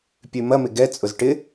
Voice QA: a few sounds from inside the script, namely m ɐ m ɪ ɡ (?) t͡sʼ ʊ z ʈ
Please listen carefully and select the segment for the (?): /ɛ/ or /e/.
ɛ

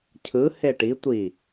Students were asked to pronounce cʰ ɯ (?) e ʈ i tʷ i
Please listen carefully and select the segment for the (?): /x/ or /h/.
h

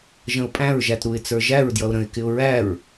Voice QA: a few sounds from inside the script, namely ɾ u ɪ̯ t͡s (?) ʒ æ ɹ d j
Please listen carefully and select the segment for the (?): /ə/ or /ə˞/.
ə˞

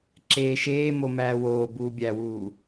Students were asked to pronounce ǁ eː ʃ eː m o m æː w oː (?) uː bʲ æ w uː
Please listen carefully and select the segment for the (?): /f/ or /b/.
b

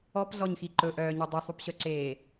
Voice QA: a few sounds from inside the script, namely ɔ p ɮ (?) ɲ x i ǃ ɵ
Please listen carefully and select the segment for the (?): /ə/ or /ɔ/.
ɔ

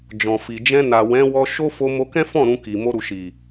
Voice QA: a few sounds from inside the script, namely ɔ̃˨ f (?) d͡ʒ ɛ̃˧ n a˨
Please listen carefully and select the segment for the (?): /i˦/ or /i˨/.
i˨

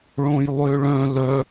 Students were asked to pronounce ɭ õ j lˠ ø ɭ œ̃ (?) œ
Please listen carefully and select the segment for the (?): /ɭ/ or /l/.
l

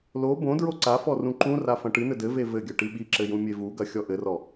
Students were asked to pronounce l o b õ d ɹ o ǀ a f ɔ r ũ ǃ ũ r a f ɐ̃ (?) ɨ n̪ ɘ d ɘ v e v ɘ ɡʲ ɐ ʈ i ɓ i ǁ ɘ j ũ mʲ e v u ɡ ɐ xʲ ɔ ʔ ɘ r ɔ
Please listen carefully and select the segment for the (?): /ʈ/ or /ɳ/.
ʈ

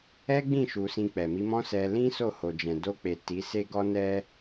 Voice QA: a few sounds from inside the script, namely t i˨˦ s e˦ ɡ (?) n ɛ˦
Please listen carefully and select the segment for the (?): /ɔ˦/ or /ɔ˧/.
ɔ˦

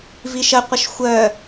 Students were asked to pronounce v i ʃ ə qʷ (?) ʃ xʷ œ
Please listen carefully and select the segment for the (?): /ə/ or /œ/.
ə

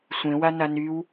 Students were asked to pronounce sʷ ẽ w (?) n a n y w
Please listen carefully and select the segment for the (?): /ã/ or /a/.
a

